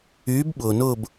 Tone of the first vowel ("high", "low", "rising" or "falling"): rising